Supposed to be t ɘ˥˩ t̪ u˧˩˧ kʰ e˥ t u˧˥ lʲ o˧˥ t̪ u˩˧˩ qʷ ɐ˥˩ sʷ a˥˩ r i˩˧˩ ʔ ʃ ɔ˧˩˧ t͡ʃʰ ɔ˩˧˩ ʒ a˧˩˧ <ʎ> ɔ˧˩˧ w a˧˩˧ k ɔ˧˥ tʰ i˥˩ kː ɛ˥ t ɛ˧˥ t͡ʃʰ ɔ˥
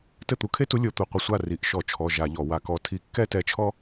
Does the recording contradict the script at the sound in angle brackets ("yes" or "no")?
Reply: no